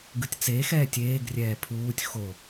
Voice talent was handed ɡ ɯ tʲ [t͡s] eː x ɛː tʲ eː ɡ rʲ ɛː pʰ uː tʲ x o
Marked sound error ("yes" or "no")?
no